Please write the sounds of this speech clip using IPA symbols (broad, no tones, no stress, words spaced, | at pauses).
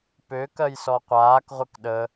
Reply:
pø kɜjsɔqʷaːk ʁʷɘkɗə